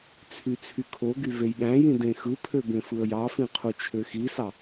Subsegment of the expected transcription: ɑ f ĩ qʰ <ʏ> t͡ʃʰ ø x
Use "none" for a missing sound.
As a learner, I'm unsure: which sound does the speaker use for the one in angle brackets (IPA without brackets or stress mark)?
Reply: u